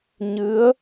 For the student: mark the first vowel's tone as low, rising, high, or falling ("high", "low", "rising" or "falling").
rising